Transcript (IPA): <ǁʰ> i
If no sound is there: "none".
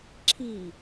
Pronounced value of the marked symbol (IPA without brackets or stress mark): ǁʰ